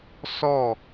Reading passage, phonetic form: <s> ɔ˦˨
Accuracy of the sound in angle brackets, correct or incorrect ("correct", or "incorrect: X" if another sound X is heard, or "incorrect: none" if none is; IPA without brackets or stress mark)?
correct